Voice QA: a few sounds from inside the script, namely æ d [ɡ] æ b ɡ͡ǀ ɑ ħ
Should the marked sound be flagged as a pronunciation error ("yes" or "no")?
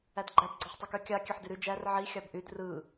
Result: yes